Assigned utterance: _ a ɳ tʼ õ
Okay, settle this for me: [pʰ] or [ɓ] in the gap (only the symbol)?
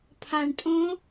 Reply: pʰ